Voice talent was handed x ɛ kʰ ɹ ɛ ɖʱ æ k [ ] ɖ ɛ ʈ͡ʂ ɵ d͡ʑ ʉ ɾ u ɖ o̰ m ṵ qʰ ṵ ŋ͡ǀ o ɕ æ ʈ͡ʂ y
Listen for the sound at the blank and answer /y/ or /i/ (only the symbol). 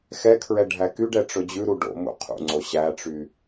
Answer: y